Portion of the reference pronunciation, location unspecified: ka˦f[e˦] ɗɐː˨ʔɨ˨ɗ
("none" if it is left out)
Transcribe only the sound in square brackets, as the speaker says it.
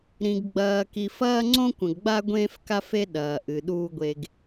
e˦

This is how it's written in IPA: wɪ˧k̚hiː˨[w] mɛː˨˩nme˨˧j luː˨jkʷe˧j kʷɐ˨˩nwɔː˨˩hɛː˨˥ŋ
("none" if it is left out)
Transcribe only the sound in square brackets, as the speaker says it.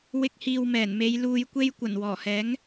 w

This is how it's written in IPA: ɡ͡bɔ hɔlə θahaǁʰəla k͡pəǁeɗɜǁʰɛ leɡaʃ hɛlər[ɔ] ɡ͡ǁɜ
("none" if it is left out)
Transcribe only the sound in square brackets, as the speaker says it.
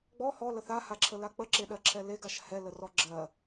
ɔ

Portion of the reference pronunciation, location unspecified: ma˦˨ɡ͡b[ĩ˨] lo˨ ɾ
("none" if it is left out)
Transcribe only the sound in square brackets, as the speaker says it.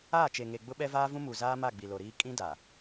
i˨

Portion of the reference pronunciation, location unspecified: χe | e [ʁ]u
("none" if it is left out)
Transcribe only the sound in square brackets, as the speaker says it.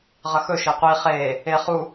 χ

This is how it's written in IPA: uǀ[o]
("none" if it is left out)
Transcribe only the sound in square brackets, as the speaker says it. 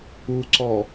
ɔ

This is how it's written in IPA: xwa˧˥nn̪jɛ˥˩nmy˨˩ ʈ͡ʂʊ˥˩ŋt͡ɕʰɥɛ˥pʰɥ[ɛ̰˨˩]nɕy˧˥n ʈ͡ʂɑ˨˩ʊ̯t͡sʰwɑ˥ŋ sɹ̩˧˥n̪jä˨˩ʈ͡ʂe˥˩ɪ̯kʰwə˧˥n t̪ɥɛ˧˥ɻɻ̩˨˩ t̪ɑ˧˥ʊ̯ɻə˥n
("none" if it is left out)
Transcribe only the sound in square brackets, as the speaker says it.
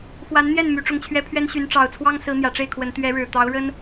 ɛ˥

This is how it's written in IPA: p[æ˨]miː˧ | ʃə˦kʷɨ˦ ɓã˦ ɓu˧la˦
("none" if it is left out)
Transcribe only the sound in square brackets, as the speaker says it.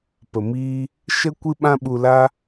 ə˨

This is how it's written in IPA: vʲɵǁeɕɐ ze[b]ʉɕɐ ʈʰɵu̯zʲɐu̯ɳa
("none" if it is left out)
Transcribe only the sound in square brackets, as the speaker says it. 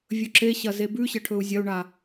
b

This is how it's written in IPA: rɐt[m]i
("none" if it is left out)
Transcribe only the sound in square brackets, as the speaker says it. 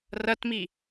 m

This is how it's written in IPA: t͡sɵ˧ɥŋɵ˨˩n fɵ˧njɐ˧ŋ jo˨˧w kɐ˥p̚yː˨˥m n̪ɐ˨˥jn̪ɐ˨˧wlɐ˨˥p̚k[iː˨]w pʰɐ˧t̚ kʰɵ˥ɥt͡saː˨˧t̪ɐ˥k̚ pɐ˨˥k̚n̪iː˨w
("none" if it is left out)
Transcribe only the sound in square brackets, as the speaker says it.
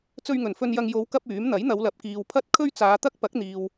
iː˨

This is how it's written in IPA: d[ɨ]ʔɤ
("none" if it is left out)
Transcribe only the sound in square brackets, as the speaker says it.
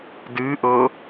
ɨ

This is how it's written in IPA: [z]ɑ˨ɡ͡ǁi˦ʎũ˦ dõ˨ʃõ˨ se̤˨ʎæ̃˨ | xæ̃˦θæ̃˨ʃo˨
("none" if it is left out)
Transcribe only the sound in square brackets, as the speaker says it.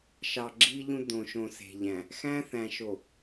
ʃ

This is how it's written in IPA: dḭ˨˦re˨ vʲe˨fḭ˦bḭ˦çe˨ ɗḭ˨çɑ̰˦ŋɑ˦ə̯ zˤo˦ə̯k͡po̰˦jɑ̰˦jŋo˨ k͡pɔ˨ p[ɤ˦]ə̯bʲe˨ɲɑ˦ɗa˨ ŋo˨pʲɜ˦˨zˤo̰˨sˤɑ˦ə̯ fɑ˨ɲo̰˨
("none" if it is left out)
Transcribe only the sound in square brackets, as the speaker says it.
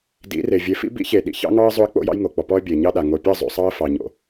ɔ˦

